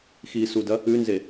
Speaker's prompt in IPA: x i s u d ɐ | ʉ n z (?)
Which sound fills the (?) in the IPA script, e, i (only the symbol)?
e